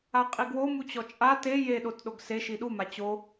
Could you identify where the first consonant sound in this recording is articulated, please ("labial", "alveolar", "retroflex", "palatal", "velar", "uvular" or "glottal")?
uvular